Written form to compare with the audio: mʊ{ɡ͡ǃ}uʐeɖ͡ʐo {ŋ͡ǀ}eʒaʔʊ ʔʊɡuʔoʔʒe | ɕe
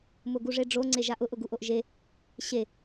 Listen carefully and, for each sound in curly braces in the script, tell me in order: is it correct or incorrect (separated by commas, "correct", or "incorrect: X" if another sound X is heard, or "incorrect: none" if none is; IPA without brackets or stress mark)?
incorrect: ɡ, correct